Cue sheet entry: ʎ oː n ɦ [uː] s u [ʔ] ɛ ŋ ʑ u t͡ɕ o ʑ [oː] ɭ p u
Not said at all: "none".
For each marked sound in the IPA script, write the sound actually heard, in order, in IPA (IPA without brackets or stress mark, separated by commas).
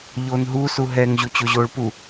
uː, ɦ, oː